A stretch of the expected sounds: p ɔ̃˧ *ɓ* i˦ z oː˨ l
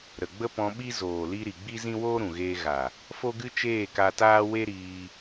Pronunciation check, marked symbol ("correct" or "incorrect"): correct